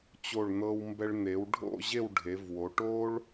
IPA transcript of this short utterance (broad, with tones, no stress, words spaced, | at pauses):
t͡ɕo˧˩ɭn̪ɤ˧wmbɛ˧ɭ n̪e˩˧wɖʱo̰˥˧ ʑe˥˧wɖʱe˩˧vwo˩˧ ʈo˥ɭ